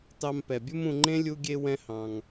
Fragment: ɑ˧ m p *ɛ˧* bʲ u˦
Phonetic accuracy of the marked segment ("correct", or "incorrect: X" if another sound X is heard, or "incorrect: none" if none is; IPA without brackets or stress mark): incorrect: ɛ˨